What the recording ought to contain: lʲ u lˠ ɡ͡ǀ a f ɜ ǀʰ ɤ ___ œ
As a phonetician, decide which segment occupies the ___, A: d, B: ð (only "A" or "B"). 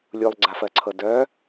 A